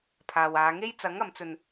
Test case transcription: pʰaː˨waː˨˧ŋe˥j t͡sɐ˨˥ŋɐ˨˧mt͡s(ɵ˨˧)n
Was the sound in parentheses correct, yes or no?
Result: no